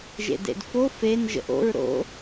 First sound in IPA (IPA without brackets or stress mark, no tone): ʒ